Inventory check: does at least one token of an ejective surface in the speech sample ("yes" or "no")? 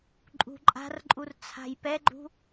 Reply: yes